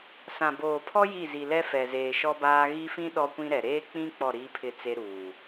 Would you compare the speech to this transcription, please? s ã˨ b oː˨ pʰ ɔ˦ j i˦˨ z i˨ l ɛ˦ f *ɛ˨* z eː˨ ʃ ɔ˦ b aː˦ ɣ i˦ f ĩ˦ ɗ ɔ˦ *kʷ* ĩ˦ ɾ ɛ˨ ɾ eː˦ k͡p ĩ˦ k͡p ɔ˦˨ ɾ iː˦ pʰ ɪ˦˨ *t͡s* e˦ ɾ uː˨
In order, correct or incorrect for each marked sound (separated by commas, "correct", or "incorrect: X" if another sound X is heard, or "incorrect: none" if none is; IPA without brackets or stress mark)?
correct, correct, correct